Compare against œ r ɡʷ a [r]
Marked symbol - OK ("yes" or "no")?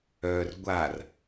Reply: yes